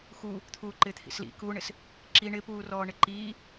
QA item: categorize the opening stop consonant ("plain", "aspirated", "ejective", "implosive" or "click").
aspirated